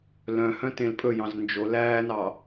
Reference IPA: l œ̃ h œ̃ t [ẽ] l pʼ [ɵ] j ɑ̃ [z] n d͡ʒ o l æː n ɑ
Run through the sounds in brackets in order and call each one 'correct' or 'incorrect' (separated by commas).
correct, correct, correct